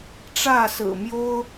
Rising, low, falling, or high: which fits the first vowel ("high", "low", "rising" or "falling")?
falling